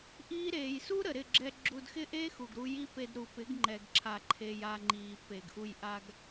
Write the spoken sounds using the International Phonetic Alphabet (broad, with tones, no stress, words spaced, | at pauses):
ʔiː˦ ɾeː˨jsu˦ ɾə˨ɾɪ˦˨ɡ͡ǁɛ˧ ɡ͡ǁu˧dxɪ˦ ʔe˦xu˨ɡɾu˧ ji˦pe˧d ɾu˨pɪ˨˦ɡŋ͡ǃɛ˨ɡǁʰa˨ ǃʰe˧ja˧ŋ͡ǃiː˨ pe˨ɡʔu˧j ʔa˧ɡ